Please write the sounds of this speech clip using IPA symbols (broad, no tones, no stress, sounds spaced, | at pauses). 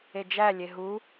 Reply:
e d͡ʒ æ lʲ e ɦ u